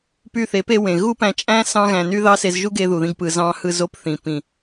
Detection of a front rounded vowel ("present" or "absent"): present